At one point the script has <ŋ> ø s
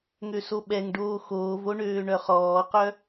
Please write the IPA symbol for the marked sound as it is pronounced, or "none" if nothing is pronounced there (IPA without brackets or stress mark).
ŋ